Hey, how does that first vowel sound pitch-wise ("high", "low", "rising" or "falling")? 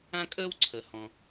high